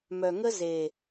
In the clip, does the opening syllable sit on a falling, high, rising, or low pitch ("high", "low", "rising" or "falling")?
low